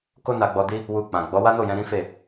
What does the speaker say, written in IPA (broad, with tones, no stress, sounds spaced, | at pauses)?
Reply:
k o˦ n a˧ ɡ͡b ɔ˧ d i˦ | w u˧ k͡p ã˨ ɡ͡b ɔ˨˦ w a˦ n o˦˨ j ɛ̃˧ ɾ ĩ˦ f e˦˨